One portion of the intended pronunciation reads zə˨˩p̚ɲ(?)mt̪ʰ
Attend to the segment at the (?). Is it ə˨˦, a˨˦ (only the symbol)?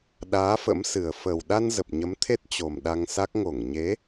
ə˨˦